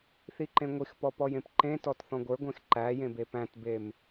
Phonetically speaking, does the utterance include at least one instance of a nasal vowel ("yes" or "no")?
yes